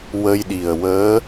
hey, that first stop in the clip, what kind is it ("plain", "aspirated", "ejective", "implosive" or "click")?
implosive